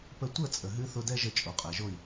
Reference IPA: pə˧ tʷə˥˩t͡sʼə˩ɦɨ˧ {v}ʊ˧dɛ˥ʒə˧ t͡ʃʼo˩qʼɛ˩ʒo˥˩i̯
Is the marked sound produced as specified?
no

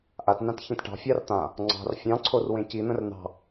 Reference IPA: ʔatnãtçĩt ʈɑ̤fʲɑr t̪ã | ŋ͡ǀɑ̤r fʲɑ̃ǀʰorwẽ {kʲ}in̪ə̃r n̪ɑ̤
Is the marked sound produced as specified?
no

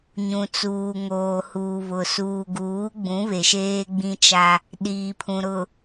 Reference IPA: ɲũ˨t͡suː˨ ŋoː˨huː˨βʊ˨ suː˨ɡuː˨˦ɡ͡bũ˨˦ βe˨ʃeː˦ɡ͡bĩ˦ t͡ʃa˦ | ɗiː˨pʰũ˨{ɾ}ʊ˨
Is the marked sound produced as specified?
yes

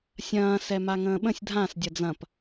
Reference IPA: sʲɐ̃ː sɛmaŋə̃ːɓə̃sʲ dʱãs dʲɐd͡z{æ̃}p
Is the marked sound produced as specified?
no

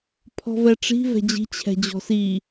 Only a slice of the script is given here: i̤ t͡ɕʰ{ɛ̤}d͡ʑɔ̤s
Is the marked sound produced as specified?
yes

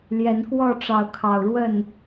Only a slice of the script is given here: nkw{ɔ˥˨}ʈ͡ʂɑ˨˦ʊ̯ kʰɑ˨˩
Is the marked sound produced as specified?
yes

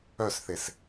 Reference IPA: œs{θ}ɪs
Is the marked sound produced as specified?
yes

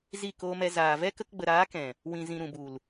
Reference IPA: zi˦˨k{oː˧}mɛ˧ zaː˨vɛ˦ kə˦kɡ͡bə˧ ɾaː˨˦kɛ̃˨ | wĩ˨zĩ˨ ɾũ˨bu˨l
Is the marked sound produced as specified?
yes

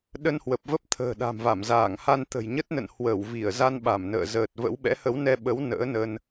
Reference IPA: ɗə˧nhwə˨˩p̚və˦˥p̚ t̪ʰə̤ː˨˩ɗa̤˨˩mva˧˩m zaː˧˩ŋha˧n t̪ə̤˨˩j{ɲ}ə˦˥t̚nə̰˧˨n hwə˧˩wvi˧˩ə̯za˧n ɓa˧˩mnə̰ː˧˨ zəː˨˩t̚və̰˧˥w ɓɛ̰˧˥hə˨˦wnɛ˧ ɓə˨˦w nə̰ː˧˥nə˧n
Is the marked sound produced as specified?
yes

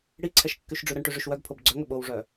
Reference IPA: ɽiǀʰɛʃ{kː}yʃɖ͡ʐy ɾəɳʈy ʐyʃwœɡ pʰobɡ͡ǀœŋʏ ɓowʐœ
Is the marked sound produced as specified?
yes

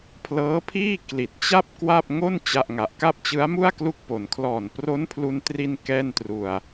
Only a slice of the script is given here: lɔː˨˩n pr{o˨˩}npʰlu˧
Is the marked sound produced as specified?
no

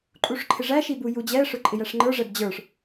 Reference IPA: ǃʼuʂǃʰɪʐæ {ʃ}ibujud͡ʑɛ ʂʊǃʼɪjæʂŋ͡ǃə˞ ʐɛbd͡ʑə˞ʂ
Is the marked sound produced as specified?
yes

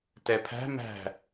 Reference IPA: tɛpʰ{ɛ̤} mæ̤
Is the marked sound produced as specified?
no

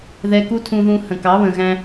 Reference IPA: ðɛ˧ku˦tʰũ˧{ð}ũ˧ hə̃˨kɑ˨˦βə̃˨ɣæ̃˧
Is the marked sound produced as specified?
yes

